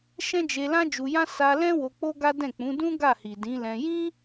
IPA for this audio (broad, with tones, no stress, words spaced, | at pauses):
ʃɛ̃˦d͡ʒe˧lã˦ d͡ʒu˧jã˦ sa˧lɛ̃˦ wo˧k͡po˦ɡa˦dɛ̃˦˨ k͡pũ˨˦ dũ˦ ɡa˦˨hi˨dĩ˨˦lɛ̃˧ jĩ˦